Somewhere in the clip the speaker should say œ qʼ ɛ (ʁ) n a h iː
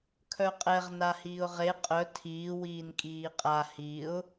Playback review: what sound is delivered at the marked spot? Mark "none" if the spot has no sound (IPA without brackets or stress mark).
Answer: ʁ